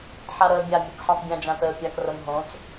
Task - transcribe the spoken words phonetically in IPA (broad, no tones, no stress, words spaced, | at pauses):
ħaɾəːbʲa mʲokħɑ̃tˤbʲõ d͡ʒãtəːpʲak rəmɦõt͡s